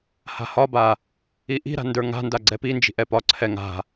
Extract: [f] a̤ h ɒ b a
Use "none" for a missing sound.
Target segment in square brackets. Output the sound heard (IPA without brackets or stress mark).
h